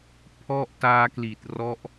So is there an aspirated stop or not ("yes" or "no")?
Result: yes